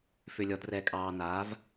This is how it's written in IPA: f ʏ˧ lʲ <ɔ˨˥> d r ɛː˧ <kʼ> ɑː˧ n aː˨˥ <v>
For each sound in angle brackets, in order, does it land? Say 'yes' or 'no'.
yes, yes, yes

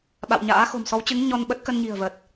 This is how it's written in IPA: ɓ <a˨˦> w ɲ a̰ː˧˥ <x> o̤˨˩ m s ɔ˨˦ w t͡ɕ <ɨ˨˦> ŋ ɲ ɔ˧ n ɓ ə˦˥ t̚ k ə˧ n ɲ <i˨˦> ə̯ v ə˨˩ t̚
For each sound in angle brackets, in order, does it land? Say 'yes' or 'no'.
no, yes, yes, no

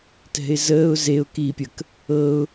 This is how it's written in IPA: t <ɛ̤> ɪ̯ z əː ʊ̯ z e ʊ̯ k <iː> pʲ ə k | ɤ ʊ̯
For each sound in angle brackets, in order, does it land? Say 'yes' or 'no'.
yes, yes

